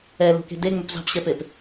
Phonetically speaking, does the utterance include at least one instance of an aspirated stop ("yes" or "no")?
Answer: no